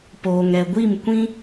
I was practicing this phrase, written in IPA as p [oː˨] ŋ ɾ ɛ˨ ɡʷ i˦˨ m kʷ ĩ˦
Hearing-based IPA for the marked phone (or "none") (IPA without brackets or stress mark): oː˨